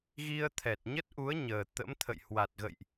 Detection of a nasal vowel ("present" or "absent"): absent